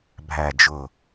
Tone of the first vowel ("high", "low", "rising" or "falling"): low